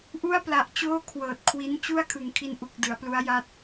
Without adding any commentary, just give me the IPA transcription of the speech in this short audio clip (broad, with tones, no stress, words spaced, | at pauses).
ʔu˥˩a̯pla˨˩ʔ t͡ɕoː˥˩ kʰwɤː˨˩t̚kʰwi˦˥n t͡ɕu˥˩a̯kʰɯ˨˩ŋkʰi˧nʔu˨˩k̚ dɯ˩˦a̯plu˦˥a̯ja˥˩t̚